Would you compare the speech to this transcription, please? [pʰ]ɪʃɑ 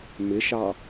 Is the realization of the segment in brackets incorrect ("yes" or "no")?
yes